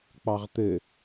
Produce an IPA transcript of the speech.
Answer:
k͡pɑʁt̪ɘ

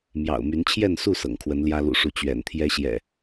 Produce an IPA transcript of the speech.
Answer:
mjɑ̰˨˩ʊ̯my˨˦nt͡ɕʰjɛ˥˨nsu˥˨ sɤ̰˨˩ŋkʰwə˨˦n ljä˦ lṵ˨˩ʂu˨˦ t͡ɕɥɛ̰˨˩nt̪ʰjɛ˦ ɕjɛ̰˨˩

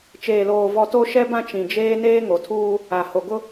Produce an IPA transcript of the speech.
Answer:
t͡ʃeː˨loː˨vɔ˨ to˦ʃɛ˦bã˦ t͡ʃĩ˨d͡ʒeː˦ neː˦ŋo˨tʰuː˦ | a˨ho˨ɡʊ˦

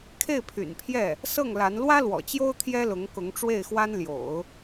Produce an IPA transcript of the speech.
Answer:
kʰe˥˩ɪ̯pʰy̰˨˩npʰjɛ˥˩ | sɤ˥˩ŋla˧˥n lwä˥lwɔ̰˨˩t͡ɕjo˥ʊ̯ t̪ʰjɛ˥lʊ˧˥ŋkʊ˧˥ŋ ʈ͡ʂwe˥˩ɪ̯xwa˥nljo̰˨˩˦ʊ̯

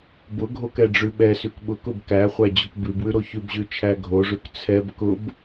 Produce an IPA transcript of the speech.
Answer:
bʊɡʱok ɛɖ͡ʐʉɓɛsʉk ɓʊkʊb kæχʷæ d͡ʑokbʉbwʉ ɾoçʉbʑʉ t͡ʃʰæɡʱoʐʉk t͡sʰɛb kʊb

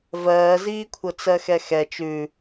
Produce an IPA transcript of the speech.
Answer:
vɜːziːkʷʰɤ t͡sɜxɛxɛ t͡ʃʉ

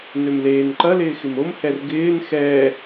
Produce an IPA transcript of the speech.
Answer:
nømleːnǃɐ lɪːxɪmom hɛrɡɪːn xɛː

